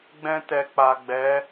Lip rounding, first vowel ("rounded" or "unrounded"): unrounded